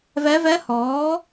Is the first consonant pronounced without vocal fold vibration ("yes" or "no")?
no